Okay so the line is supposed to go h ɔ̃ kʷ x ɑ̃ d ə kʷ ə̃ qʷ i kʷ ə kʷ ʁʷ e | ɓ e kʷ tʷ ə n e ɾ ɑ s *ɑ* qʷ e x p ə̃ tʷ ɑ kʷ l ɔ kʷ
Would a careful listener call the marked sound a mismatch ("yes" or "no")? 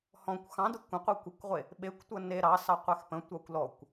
no